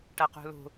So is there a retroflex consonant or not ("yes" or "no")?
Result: yes